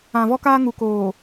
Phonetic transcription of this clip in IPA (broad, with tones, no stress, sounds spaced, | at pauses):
ã˨ v ɔ˦ k aː˦ ŋ u˨ k oː˨